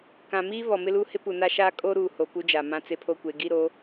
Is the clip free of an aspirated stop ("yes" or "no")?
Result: no